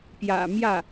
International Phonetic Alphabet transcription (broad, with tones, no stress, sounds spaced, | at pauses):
p j ä̰˨˩ m j ä˥˩